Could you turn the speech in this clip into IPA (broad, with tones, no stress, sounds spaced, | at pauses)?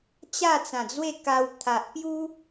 t͡ɕ a˥˧ t͡s ã˨˩ d͡z w e˥˧ k a˧ w t̪ʰ a˨ ʔ p j u˦